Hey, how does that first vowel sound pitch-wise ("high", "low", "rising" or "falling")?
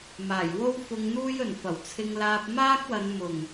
low